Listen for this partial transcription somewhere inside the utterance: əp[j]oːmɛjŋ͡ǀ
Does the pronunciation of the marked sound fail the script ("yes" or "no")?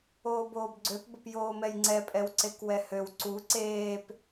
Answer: no